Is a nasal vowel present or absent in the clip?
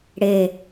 absent